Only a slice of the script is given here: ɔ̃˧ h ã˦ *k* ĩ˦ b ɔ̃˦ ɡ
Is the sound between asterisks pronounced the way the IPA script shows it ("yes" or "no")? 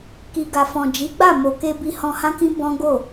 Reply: yes